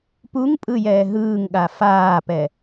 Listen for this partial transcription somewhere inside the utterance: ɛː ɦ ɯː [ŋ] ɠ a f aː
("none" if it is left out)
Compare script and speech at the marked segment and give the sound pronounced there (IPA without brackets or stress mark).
ŋ